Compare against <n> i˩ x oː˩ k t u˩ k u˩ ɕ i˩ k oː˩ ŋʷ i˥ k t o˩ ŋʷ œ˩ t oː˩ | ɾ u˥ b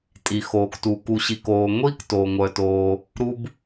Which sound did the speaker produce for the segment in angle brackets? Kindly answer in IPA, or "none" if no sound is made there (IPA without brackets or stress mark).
tʼ